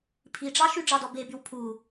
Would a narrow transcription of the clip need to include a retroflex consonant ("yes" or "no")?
yes